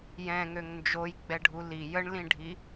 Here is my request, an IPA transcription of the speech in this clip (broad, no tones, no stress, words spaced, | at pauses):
jɛ̃ŋøŋ nd͡ʒojɡ͡bɛɖʱu li jəɳlĩɖʱi